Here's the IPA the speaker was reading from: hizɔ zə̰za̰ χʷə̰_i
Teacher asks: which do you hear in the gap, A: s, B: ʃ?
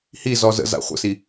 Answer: A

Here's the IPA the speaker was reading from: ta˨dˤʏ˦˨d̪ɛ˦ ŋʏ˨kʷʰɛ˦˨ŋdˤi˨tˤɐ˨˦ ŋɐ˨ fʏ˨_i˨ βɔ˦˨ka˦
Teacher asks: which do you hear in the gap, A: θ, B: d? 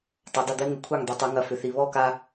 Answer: A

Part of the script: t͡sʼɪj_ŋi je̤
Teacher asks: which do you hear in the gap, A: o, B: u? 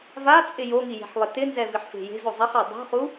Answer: A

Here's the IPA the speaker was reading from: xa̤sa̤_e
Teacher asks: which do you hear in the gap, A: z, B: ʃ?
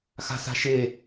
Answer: B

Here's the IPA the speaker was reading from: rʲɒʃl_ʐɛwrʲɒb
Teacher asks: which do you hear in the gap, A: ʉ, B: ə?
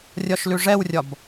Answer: A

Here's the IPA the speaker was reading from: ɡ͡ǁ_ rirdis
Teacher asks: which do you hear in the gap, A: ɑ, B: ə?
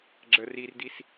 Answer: B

